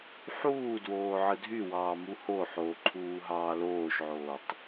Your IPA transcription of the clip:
ħ uː d w oː ʕ ɯ dʱ y w ɑː m u h o ħ oː ǃʰ uː ɦ ɑː l oː ʃ ʕ oː tˤ

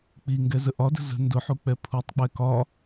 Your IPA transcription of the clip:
k͡p i ŋ ɡ ɛ z ə ʔ ɒ d ə̤ z ə̤ n d ʊ ħ u k͡p ɛ pʰ u tˤ k͡p ɛ k ɒ

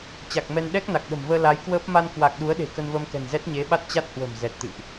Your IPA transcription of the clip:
t͡ɕ a˨˩ k̚ m ɛ˧ n ɗ ɛ˦˥ k̚ n a˨˩ k̚ ɗ ə̤˨˩ m v əː˧ l a˨˦ j k w əː˦˥ p̚ m a˧ n k w a˨˩ k̚ ɗ u˨˦ ə̯ ɗ e̤˨˩ k ə˧ n v əː˧ m k ɛ̤˨˩ n z ɛ˦˥ t̚ ɲ e˨˦ ɓ a˦˥ t̚ t͡ɕ a˦˥ t̚ h w ə̤˨˩ m z ɛ˨˩ t̚ t̪ ɨ̰˧˨ ʔ

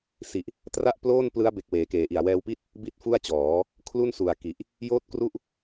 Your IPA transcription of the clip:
s i˨˩ ʔ | t r a˥˩ ʔ p l oː˥˩ n p l ɯ˦˥ a̯ b e˨˩ k̚ w eː˩˦ k eː˩˦ ʔ i˨˩ a̯ w ɛː˧ w p i˥˩ t̚ | b i˥˩ t̚ f u˥˩ a̯ t͡ɕ ɔː˩˦ | kʰ l u˥˩ n s u˨˩ a̯ k i˨˩ ʔ | j oː˥˩ t̚ k r u˥˩ ʔ

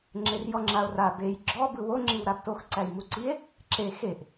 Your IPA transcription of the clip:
ŋ͡ǁ e r j ɔ ŋ͡ǁ a o̯ r a b e j ɡ͡ǁ ɔ b ɯ w o ŋ͡ǁ i w ɾ a b t o x ǀ æ j m u ǀ i e̯ | ǁ e x e ʔ

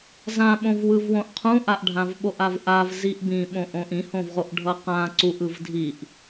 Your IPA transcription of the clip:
z ã ɓ õ v w ɯ v w õ ʔ qʰ ũ ʔ a ʔ ɖʱ ã v ɓ o ʔ a v ʔ a v z i ʔ b ĩ ɓ õ ʔ õ ʔ ĩ h õ v ʁ o ʔ ɖʱ ʌ q ã ǀ u ʔ ɯ v dʱ i ʔ

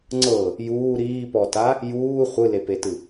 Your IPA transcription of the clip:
ŋ͡ǀ ɤ | j uː ɾ iː p ɔ t a | j uː χʷ ɯ l e p e t ɯ

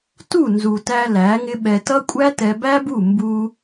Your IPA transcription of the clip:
t u˦˨ n z u˨ t æ˧ l æ˨˦ ŋ ɪ˦ ɓ ɛ˧ t ʌ˦ kʷʼ æ˦ t ɛ˧ b æ˦ b u˦˨ m b u˧

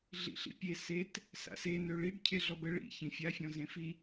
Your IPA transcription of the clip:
ɮ ḭ ɬ ḭ pʲ e s e t | s a̰ s e n ø ɭ i ɖ cʰ e ɮ ɔ b ə ɭ ḭ ç ĩ fʲ a fʲ ɔ̃ z ẽ f i

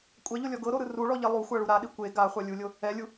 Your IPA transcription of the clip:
kʷʼ ɛ ʎ o lʲ ɔ ɡ ɤ ɾ o ɾ ɯ r u ɭ ɔ ʎ e lˠ u xʷ a ɭ u ɾ a ɗ i kʷ e ɡ a χʷ a lʲ u lʲ o | ɛ lʲ u

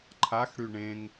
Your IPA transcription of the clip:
ǃʰ a x ɽ y ɳ ẽ ŋ

